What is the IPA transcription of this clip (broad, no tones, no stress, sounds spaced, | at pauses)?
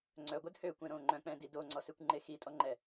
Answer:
ŋ͡ǀ œ ɡʷ œ d h ø kʷ ɛ̃ ɾ õ ŋ͡ǃ œ̃ k͡p ɛ̃ d i d o ŋ͡ǀ ɔ s e kʷ ŋ͡ǃ e x i tʼ ɔ ŋ͡ǃ ɛ